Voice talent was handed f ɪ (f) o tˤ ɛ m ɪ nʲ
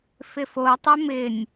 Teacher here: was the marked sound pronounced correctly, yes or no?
yes